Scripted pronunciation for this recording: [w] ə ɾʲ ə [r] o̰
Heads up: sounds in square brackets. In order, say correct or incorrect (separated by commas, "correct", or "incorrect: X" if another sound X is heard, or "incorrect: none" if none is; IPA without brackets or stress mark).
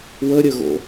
correct, incorrect: ɣ